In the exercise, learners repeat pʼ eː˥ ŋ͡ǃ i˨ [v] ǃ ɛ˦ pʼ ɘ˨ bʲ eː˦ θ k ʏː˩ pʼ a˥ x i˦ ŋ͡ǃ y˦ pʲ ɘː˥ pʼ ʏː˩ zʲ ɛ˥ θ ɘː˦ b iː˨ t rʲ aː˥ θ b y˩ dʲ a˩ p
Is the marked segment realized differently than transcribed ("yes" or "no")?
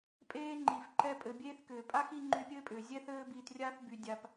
yes